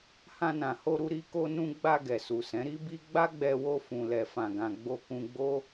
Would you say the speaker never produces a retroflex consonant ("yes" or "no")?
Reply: yes